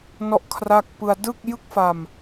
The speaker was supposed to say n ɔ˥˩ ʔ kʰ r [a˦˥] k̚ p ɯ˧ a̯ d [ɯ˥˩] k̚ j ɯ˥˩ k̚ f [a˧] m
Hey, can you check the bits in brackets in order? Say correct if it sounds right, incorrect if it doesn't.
incorrect: a˥˩, correct, correct

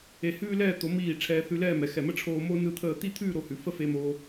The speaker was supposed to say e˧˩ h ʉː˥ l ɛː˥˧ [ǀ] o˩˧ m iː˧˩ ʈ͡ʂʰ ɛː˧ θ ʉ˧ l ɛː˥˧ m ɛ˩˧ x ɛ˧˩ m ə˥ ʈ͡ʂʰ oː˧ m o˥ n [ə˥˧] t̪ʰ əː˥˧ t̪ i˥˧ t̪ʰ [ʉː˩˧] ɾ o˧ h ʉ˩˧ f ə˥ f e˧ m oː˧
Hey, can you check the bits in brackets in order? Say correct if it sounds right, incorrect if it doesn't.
incorrect: t̪, incorrect: ɯ˥˧, incorrect: ʉː˥˧

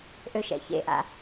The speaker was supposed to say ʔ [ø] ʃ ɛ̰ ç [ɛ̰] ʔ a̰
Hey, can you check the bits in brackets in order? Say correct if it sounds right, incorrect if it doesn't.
correct, incorrect: ḛ

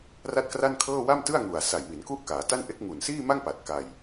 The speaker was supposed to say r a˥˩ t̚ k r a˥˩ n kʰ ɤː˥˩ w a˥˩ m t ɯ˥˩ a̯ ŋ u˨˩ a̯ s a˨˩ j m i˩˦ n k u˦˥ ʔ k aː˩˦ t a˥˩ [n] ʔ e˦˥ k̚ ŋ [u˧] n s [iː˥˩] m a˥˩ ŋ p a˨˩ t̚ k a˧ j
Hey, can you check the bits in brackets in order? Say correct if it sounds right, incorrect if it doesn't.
correct, incorrect: u˨˩, correct

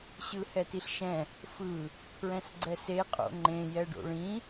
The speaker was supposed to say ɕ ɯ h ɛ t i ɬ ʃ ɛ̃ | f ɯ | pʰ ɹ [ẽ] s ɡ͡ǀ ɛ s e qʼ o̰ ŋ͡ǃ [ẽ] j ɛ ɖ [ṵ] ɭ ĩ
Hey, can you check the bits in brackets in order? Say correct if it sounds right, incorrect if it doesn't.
incorrect: ɛ̃, correct, incorrect: o̰

